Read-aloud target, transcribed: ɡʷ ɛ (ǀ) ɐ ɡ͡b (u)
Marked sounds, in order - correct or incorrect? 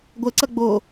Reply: correct, incorrect: o

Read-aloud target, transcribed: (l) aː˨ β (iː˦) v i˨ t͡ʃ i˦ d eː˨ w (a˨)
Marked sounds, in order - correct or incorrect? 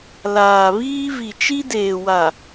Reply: correct, correct, correct

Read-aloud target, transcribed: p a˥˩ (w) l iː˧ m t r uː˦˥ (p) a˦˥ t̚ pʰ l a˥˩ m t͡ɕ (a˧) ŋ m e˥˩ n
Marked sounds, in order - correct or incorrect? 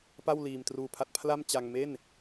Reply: correct, incorrect: pʰ, correct

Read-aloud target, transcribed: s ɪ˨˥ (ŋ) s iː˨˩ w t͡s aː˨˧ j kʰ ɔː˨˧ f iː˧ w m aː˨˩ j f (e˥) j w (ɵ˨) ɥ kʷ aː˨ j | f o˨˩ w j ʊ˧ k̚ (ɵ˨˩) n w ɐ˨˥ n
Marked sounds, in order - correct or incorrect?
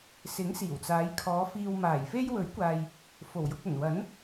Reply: correct, correct, incorrect: ɵ˨˥, correct

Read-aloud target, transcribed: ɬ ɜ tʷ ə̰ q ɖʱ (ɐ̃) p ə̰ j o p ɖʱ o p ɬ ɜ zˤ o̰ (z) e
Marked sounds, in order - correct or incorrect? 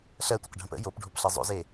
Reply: incorrect: ə̃, correct

